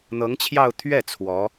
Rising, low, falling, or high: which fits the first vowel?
rising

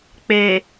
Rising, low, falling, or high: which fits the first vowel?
low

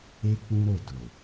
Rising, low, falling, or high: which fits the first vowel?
high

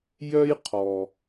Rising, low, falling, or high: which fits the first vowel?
high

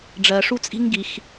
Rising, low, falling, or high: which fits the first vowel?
low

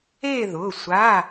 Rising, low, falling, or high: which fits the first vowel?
falling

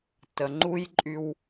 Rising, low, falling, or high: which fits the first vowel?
low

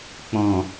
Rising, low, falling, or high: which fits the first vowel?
low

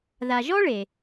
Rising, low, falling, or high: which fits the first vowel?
low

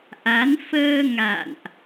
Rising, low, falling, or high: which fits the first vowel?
rising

